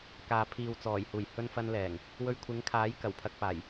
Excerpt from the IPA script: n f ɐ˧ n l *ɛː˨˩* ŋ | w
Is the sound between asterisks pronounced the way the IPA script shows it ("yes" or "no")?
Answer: yes